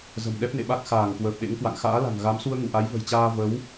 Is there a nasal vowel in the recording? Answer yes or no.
no